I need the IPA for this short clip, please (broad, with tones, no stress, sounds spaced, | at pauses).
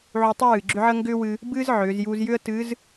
ʕ u˧ tˤ ɨ˥ w ɨː˩ ɡ͡ǁ ʏ˥ ʕ ə˥ ŋ ɡ ʏː˥ w ɨ˧ | b ɨː˥ z ʕ ʏː˩˧ z j u˧ z j ʏ˥ ə̯ t ɨ˧˥ z